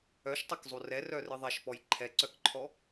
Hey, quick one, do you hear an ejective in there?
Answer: no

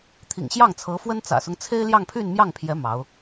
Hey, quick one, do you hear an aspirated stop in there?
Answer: yes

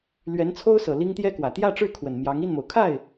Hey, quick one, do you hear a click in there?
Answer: no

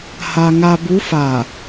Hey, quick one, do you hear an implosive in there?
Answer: no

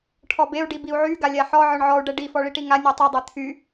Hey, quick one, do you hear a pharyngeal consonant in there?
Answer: yes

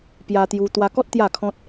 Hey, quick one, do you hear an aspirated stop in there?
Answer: yes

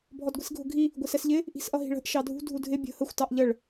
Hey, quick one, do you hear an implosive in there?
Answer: no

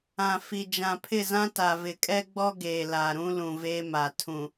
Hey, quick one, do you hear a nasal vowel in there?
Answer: yes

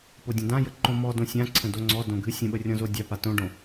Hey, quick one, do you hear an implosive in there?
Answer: yes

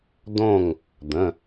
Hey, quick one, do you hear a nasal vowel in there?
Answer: yes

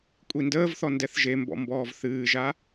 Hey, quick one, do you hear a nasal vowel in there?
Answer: no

